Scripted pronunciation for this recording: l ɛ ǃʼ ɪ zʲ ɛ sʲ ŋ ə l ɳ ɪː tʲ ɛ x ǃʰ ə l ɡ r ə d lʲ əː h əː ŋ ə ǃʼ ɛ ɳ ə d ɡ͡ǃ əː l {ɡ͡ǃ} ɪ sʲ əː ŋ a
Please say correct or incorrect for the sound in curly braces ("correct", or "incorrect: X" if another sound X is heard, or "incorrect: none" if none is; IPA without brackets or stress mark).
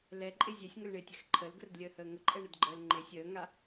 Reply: incorrect: ŋ͡ǃ